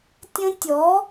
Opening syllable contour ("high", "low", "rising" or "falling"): high